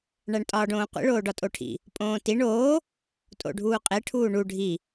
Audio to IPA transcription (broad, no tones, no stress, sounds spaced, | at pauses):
ɳ æ ɳ tʼ ɒː ɖ õː qʷ ḭ ɭ oː ɖ ɒ tʼ o ʈʰ ḭ | pʼ õː t i ɳ oː | tʼ o̰ ɖʱ uː qʼ e ʈʰ uː ɳ u ɖʱ i